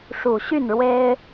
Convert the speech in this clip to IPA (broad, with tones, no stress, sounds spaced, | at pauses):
ʂ u˨˩ ɕ y˥˨ n ɻ w e˦ ɪ̯